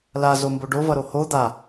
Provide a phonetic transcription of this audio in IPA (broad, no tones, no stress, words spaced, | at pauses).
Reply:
la zomboɖovʌ ɾoho d̪a